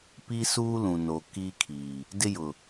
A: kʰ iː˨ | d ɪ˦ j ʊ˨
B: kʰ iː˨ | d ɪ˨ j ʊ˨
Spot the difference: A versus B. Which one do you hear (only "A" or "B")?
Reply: A